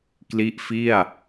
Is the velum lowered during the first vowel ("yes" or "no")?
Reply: no